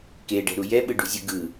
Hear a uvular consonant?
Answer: no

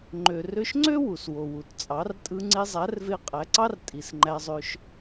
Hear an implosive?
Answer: no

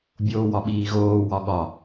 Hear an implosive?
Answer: yes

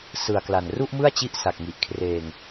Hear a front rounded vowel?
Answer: no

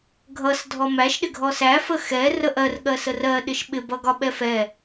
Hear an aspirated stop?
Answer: no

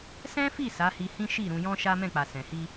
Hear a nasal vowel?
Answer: yes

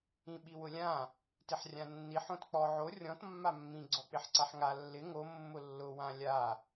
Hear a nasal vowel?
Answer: yes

